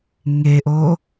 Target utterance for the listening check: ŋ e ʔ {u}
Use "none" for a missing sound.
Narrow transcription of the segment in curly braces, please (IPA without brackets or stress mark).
o